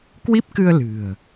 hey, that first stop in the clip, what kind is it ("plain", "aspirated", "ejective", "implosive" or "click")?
plain